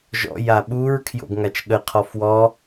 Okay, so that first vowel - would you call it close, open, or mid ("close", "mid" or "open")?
mid